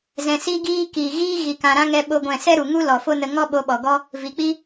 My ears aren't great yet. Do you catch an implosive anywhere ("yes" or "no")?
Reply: yes